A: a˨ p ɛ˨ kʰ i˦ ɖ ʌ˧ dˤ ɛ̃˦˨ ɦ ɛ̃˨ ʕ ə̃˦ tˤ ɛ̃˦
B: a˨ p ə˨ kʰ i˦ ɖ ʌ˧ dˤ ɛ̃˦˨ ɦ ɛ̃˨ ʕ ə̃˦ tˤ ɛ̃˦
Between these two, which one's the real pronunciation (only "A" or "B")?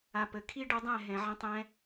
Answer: B